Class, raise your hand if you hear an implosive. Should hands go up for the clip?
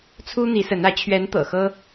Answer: no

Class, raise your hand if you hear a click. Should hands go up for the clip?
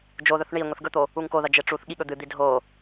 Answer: no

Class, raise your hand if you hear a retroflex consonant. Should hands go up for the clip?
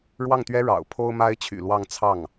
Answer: yes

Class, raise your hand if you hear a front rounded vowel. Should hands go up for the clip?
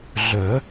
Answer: yes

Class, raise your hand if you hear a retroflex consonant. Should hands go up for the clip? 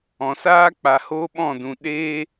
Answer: no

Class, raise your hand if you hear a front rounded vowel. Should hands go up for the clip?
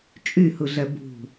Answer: yes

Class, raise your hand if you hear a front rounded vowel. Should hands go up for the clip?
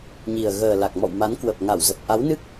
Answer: no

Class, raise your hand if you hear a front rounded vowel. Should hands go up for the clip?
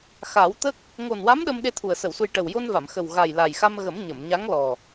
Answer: no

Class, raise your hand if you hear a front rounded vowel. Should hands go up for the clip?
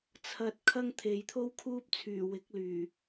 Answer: yes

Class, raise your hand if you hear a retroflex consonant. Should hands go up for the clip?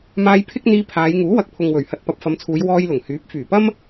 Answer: no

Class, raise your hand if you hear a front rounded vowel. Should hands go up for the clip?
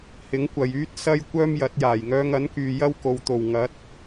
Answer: yes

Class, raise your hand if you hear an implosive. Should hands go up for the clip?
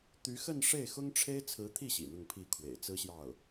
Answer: no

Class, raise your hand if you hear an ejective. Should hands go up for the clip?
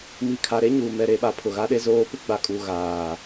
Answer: yes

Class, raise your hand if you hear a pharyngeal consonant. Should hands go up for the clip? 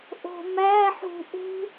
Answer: yes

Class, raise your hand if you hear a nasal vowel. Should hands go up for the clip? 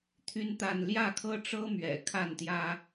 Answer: no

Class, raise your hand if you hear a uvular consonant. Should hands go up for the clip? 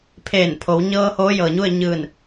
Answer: no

